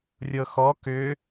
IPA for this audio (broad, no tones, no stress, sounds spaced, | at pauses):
rʲ ɤ x ɔ k ʏ